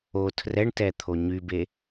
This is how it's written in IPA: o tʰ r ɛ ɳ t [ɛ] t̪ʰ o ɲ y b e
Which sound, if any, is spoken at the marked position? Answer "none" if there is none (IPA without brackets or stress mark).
ɛ